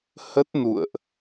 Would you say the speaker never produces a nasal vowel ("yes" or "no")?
yes